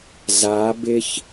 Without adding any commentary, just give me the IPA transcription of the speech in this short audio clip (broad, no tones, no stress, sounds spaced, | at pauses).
z a b ɪ ç